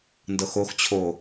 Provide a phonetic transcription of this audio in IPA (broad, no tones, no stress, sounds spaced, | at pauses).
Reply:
n d ɤ x o x t͡ɕʰ o